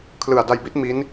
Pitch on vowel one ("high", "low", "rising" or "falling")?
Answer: low